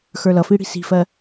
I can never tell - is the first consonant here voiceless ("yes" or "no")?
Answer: yes